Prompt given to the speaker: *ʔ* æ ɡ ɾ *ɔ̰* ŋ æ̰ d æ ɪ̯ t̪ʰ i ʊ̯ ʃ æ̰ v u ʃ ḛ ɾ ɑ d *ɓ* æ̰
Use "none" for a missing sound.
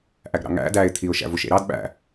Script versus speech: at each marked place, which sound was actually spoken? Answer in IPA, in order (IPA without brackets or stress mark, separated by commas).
ʔ, ɑ̰, ɓ